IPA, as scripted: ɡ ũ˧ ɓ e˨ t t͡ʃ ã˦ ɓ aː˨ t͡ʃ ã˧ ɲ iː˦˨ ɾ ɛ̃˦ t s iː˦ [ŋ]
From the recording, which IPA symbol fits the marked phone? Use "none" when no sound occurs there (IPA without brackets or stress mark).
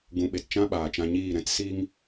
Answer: ŋ